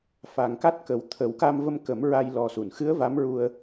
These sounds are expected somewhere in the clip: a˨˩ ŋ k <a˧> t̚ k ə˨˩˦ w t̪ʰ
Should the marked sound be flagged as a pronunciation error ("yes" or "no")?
yes